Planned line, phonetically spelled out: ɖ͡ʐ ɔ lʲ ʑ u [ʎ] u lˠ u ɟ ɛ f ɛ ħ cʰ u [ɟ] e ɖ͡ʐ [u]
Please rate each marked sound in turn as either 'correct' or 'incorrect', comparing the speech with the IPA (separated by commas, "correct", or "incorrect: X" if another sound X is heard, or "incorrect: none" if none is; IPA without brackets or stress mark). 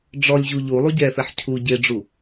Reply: correct, correct, correct